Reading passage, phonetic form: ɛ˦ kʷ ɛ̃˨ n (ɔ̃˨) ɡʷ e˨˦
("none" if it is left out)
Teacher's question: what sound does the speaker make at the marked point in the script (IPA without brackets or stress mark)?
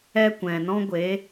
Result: ɔ̃˦